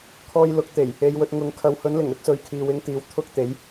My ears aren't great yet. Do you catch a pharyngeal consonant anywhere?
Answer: no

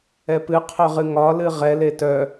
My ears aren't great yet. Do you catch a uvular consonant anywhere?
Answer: yes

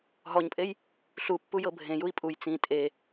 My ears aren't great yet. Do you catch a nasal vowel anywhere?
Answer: yes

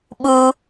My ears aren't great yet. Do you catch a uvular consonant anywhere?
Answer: no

